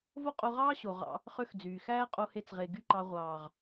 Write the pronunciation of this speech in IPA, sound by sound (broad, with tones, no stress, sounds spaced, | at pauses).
v o˦ qʼ o˧ ʁ ɑː˦ ɕ o˨ ʁ ɑ̰˧ | χ ø˦ x d͡z yː˨ x æː˦ qʼ o˧ h e˧ t͡s ʁ e˨ ɡ y˦ ǃ ɑ˧ ʁʷ ɑː˨ ʁ